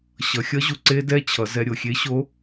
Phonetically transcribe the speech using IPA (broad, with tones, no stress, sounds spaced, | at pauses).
ɕ ʌ˩˧ xʲ ʌ˧˥ ʑ u˩ ǀ e˧ d ɛ˧ t͡ɕʰ ʌ˩˧ z ɛ˧ ɾʲ o˩ xʲ e˧˥ ɕ o˧˥